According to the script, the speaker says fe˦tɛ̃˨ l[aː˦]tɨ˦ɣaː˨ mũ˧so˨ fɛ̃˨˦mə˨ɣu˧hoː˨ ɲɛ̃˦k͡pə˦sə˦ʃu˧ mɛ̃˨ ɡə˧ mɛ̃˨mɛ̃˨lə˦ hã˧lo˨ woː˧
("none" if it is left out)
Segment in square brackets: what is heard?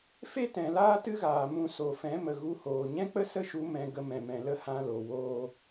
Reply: aː˦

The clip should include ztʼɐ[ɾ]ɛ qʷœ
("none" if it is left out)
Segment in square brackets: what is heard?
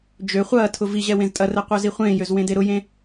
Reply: r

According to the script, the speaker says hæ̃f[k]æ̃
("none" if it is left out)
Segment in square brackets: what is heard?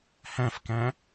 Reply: k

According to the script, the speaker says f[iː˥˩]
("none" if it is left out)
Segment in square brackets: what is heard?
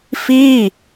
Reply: iː˥˩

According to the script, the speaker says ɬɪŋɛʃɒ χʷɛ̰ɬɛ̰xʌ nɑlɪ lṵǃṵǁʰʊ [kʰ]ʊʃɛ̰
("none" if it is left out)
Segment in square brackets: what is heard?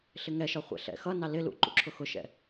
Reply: x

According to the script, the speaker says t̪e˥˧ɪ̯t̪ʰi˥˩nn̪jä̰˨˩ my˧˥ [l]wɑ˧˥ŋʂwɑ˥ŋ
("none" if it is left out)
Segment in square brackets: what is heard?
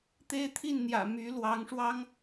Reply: l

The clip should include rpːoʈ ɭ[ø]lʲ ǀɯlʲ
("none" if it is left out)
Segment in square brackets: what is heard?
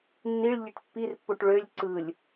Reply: ø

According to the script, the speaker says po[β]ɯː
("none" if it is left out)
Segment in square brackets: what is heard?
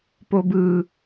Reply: b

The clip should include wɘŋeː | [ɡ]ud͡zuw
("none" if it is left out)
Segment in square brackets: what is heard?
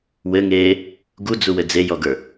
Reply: ɡ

